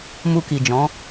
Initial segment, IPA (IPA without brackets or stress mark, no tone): m